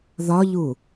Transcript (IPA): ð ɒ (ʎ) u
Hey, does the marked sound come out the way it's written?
yes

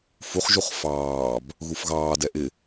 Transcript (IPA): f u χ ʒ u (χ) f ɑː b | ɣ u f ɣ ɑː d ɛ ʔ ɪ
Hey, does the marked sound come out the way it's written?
yes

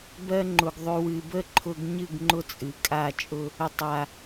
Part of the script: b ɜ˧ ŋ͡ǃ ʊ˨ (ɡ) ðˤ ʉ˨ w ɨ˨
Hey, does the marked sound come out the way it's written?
yes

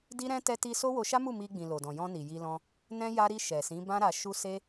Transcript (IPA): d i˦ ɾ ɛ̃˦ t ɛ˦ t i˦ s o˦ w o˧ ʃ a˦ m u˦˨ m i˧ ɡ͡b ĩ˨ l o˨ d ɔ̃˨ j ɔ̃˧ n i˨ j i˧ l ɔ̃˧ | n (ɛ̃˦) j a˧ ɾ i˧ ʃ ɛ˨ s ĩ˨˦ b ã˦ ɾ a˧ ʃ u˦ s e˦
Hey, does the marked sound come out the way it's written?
yes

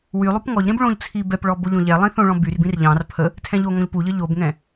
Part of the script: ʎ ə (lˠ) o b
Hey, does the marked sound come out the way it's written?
no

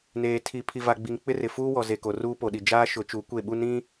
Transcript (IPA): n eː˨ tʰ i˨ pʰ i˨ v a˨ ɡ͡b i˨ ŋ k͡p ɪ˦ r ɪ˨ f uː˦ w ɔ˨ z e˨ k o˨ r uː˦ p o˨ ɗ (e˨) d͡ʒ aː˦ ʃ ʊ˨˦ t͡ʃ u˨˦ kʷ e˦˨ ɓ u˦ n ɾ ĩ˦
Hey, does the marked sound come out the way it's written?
no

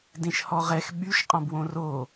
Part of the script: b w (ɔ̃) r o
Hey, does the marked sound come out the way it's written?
no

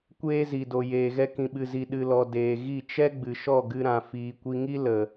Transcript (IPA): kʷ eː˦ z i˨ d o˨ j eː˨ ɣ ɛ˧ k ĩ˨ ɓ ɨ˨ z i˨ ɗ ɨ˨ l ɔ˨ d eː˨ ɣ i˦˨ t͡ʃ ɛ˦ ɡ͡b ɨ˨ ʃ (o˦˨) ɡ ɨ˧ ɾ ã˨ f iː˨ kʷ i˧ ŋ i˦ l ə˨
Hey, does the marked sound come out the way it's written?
no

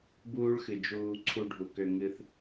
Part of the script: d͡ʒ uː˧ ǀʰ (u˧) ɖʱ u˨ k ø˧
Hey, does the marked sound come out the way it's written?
yes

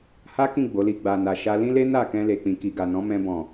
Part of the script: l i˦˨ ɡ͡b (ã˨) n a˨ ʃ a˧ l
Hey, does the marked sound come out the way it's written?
no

